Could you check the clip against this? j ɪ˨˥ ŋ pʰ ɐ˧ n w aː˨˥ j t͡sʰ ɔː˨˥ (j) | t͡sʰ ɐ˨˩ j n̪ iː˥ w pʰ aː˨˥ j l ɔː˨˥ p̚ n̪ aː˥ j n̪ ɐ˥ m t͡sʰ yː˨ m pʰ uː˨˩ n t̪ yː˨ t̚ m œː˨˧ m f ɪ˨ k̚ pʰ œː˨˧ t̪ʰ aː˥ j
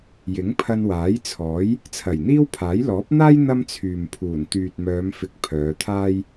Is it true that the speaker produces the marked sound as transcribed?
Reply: yes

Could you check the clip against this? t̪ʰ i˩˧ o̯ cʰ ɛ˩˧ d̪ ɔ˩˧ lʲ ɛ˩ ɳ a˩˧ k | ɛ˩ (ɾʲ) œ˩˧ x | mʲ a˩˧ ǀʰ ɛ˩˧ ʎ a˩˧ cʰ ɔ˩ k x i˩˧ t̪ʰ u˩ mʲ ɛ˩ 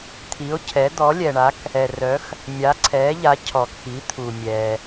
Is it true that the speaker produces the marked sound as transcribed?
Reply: no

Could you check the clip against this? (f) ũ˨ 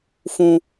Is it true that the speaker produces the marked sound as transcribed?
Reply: yes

